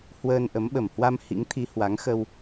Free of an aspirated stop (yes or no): no